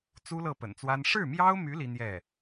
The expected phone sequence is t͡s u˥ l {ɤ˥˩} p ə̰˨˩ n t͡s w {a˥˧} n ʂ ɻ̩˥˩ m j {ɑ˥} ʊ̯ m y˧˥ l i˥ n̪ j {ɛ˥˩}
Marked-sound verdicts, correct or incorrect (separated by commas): correct, incorrect, correct, correct